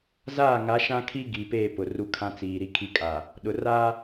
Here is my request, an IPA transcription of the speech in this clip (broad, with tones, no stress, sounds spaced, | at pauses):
z aː˦˨ ŋ a˨˦ ʃ ã˦ kʰ i˦ ɡ i˨ p eː˦˨ p ʊ˨ r u˦ kʰ ã˦ t͡s iː˨ ɾ i˦ kʰ i˦ kʼ a˨ | ɗ ʊ˨ r a˦